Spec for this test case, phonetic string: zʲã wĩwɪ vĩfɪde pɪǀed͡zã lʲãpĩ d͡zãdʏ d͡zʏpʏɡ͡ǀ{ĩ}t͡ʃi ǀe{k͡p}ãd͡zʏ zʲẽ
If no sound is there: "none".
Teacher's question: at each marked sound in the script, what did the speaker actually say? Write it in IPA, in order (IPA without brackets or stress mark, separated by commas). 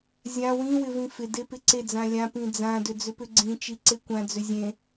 ĩ, kʷ